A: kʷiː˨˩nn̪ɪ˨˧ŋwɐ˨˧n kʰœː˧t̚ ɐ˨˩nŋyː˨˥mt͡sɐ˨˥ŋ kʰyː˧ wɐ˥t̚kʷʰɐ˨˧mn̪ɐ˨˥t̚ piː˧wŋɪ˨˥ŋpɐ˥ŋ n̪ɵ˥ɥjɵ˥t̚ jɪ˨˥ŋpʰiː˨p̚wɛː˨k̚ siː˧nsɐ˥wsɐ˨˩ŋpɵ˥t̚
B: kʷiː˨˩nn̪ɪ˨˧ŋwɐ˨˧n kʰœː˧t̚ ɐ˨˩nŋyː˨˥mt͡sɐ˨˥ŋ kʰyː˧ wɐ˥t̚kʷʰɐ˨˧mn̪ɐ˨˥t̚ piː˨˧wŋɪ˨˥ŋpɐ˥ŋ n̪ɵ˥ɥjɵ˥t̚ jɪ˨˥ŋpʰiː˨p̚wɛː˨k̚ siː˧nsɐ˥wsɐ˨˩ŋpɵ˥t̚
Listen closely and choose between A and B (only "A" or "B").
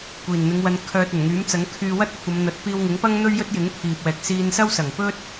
A